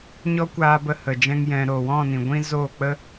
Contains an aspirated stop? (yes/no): no